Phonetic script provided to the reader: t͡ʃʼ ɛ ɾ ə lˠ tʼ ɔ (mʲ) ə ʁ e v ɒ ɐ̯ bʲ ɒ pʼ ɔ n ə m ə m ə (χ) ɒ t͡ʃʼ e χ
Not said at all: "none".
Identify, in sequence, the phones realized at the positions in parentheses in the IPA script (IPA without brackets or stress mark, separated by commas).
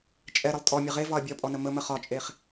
mʲ, χ